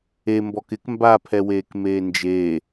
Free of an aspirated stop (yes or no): no